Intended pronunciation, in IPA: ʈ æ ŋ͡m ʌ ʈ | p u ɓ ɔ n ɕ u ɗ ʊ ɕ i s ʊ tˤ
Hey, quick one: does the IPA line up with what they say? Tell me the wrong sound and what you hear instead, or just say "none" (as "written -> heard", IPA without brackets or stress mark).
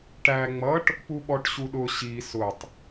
n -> ʈ